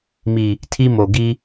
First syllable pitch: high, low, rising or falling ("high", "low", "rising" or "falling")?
low